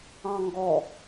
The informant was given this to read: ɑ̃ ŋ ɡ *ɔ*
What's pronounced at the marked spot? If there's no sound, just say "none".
ɔ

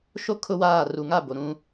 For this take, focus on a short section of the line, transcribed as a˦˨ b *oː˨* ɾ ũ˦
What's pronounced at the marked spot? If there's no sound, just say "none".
o˨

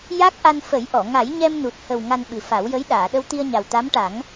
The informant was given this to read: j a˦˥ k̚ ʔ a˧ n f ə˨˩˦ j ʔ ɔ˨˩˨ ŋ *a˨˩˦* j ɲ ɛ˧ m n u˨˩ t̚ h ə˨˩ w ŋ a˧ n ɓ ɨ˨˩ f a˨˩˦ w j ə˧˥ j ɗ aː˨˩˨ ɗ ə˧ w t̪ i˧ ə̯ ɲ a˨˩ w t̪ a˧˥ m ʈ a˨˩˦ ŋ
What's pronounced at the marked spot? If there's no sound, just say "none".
a˨˩˦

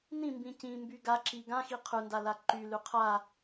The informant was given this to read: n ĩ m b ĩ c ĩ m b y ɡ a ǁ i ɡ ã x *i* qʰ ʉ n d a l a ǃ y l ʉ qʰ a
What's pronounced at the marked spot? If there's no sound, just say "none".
i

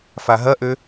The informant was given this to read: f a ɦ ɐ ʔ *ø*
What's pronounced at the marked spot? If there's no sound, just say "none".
ø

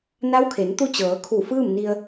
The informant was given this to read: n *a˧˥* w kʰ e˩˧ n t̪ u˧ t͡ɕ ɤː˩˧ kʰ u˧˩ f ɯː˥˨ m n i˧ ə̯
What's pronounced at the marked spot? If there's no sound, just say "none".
a˧˥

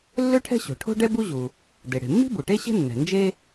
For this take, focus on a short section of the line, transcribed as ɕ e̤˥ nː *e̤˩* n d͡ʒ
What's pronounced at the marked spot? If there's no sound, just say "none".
ɛ̤˩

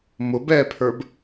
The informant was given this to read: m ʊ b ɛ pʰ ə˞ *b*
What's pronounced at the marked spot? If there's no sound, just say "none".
b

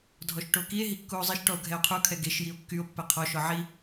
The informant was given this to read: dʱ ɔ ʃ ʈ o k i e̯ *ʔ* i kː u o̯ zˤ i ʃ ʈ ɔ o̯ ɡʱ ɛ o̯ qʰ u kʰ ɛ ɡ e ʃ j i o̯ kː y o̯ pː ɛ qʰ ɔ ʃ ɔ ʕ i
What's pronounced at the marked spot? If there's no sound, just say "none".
ɦ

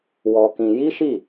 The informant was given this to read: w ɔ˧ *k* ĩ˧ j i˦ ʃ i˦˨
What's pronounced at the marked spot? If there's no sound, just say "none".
k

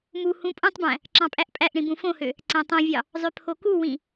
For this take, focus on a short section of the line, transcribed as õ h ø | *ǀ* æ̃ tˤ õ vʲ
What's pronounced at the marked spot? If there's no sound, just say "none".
ǀ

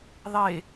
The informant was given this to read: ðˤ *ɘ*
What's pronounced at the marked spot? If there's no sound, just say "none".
e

